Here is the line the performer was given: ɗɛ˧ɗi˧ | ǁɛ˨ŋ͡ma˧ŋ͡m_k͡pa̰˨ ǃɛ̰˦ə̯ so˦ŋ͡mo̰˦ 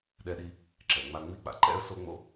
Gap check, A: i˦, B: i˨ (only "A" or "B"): A